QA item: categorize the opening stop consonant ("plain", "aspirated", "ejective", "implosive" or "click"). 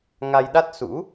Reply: implosive